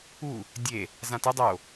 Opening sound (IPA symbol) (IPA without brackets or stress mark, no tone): u